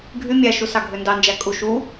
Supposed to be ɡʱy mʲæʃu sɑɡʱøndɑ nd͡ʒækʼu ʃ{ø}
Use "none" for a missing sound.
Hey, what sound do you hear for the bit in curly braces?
u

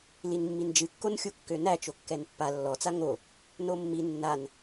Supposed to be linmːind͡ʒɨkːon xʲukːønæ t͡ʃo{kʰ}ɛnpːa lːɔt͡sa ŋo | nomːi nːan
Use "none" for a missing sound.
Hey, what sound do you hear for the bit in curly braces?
kː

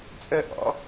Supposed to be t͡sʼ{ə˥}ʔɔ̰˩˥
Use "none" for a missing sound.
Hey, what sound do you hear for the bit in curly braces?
ə˥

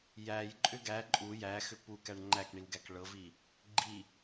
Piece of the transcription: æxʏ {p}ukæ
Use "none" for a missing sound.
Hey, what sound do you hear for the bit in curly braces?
p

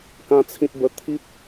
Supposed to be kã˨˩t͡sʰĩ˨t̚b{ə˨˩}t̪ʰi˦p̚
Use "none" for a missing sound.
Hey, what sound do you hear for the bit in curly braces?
ə˨˩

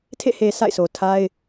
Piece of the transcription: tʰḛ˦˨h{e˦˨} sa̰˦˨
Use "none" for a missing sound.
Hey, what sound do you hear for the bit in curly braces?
e˨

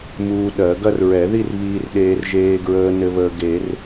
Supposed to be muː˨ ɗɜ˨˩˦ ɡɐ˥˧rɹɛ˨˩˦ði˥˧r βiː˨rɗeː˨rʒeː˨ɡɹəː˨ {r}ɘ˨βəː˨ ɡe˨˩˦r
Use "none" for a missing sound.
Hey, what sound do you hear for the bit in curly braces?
n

